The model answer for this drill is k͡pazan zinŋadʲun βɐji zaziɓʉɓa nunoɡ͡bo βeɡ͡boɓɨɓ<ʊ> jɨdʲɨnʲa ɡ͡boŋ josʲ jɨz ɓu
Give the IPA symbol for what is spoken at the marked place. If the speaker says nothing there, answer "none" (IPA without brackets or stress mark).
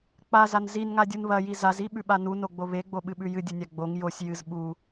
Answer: ʉ